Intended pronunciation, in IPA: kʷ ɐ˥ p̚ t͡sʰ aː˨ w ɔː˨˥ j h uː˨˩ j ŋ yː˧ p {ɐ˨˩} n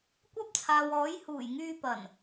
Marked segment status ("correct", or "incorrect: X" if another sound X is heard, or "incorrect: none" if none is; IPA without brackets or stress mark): correct